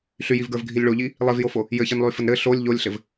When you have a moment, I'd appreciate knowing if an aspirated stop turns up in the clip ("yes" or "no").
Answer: no